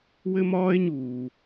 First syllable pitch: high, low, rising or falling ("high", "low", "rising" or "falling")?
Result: high